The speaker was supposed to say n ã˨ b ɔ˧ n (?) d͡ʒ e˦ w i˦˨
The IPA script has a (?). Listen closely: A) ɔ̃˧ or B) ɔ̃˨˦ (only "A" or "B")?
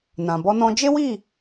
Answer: A